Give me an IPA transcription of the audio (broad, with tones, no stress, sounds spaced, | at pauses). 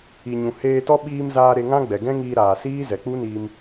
i˨ ɲ ũ˨ h eː˧ t ɔ˦ ɓ iː˧ m z aː˧ ɾ e˧ ŋ ã˦ ɡ͡b ɛ˨ ɡ ɛ̃˦ ŋ iː˧ ɾ aː˨ s iː˦ z ɛ˨ k͡p u˦ n iː˧ m